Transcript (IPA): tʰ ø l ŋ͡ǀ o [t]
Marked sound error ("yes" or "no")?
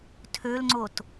no